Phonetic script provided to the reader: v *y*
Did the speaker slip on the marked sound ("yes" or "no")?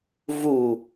yes